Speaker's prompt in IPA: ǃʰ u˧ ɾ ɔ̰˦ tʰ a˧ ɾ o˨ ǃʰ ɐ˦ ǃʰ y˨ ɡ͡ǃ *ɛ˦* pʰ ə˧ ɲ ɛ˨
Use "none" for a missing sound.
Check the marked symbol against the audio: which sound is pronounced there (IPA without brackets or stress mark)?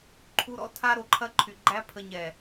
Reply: æ˦